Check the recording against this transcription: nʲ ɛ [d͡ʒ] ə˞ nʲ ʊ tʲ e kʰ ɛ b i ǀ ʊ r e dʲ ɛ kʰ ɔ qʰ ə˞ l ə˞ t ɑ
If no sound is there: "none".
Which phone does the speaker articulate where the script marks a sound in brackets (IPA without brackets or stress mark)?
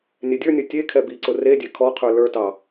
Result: dʲ